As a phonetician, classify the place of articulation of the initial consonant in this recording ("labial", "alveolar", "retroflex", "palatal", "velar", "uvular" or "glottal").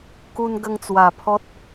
velar